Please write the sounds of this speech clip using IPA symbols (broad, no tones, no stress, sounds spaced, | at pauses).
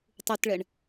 tˤ u t ɭ ɛ ɳ